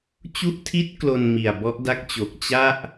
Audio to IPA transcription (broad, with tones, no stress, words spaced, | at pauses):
t͡ɕu˦˥ʔtʰi˦˥t̚ klo˧n mi˨˩a̯bɔ˦˥ʔda˦˥k̚t͡ɕo˨˩k̚ t͡ɕa˥˩ʔ